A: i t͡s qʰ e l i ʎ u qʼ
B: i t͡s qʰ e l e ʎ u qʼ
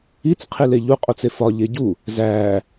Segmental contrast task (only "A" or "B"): B